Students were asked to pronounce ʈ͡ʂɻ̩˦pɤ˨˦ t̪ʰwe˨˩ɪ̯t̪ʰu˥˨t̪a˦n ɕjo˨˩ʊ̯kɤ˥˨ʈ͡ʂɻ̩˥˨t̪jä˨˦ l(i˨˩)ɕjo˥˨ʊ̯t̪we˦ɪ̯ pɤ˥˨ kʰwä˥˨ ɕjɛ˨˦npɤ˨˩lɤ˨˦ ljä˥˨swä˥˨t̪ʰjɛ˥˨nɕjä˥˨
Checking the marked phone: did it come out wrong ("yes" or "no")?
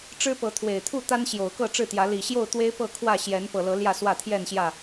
no